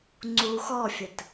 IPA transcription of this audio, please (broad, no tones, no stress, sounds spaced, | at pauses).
ŋ͡ǀ u x ɔ fʲ ə t